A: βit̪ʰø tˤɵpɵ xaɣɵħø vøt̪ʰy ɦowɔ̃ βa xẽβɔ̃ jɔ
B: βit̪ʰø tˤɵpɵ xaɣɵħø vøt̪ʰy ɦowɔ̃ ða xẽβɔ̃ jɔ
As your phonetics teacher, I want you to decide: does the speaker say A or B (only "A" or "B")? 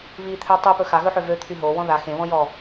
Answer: B